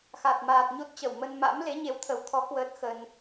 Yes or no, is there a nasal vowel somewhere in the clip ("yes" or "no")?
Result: no